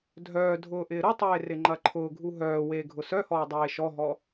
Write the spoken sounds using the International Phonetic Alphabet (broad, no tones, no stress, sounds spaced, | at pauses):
dʱ œː dʱ ʊː ʔ ɪː ɾ ʊ tˤ eː r ɪ ŋ͡ǃ ɐ ǃʰ ʊː ɡʱ u ɦ œː w eː ɡʱ ʊ s œ h ɔː dˤ eː ʃ ɔ ɦ ɔ